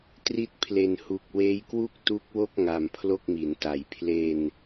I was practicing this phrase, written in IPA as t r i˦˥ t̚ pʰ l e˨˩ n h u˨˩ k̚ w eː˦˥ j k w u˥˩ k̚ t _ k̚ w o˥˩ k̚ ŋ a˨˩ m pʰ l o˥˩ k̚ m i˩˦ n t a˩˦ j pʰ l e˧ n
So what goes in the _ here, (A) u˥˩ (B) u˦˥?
B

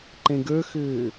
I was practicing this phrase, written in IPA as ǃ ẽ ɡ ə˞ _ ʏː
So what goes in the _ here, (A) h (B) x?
B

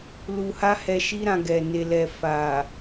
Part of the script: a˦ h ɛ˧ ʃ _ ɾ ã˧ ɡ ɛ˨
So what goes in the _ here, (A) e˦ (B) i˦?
B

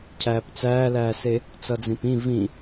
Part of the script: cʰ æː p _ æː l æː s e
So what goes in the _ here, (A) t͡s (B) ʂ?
A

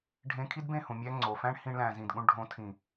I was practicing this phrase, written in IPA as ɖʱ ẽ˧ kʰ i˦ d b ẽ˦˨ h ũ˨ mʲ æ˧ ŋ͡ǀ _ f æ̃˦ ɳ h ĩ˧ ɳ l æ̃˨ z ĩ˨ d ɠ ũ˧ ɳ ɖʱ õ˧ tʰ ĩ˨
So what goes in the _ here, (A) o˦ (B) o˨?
B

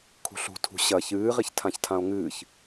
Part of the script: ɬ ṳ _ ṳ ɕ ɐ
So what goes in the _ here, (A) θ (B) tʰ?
B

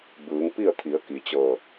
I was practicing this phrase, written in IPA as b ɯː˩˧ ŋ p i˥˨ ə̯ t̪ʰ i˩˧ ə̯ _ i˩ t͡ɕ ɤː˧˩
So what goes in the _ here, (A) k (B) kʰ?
A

